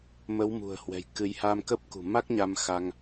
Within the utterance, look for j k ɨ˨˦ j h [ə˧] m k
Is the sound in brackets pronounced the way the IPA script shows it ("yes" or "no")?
no